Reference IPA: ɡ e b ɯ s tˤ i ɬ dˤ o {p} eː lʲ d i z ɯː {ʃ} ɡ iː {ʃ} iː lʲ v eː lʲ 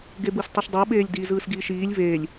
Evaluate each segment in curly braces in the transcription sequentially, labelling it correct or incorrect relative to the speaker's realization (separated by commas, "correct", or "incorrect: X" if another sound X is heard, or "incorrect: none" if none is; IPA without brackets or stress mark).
incorrect: ɓ, incorrect: s, correct